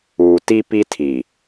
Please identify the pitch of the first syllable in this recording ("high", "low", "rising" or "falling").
low